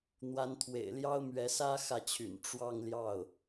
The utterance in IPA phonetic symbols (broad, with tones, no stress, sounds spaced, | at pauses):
n̪ w a˧˥ n t̪ʰ w ḛ˨˩ ɪ̯ l j ɑ˥ ʊ̯ m ɥ ɛ˧˥ s ä˥ x ä˥˩ t͡ɕʰ y̰˨˩ n ʈ͡ʂ w ɑ˥˧ ŋ l j ɑ˥˩ ʊ̯